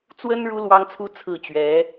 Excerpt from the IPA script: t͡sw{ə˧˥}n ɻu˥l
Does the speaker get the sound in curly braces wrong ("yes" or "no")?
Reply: yes